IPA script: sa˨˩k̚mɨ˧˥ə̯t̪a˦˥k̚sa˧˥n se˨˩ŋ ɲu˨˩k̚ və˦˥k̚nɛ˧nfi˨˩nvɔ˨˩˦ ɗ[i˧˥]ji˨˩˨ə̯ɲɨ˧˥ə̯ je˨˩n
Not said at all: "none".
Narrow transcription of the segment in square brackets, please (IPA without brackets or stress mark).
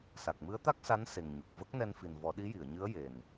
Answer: i˧˥